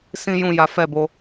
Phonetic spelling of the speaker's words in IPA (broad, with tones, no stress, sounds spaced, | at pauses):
s ĩ˦ j ũ˦˨ j a˨˦ f ɛ˦˨ b o˧